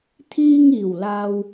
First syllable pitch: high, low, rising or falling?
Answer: low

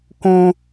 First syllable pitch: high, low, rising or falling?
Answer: high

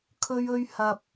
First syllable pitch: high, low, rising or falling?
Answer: high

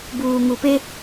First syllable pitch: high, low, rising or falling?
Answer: low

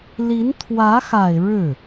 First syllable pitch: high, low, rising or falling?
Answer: rising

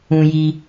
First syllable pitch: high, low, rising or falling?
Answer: low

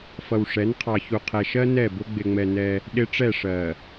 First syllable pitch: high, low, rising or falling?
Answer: low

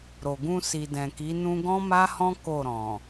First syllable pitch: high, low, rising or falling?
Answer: low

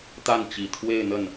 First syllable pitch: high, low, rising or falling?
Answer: falling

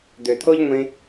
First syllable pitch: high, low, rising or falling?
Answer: low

